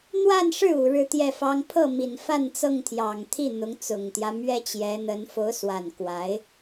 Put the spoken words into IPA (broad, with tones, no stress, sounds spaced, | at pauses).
n̪ w a˥˧ n ʂ ɻ̩˥˩ u˨˩ ɻ ɻ̩˥˧ t̪ j ɛ˥˩ f ɑ˥ ŋ pʰ ɤ˥˩ m i˨˩ n f a˥˧ n t͡s ɤ˥˩ ŋ t̪ʰ j ɑ˨˩ ŋ t̪ʰ i˥˩ n̪ ʊ˧˥ ŋ t͡s ʊ˨˩ ŋ t̪ j ä˦ m ɥ ɛ˥ t͡ɕ j ɛ˧˥ n̪ ə˧˥ n f o˧˥ ʊ̯ s w a˨˩ n k w a˧˥ ɪ̯